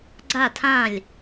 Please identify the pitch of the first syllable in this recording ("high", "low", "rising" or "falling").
falling